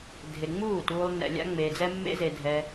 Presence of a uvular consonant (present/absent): absent